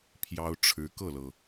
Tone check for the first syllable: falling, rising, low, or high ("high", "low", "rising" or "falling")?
high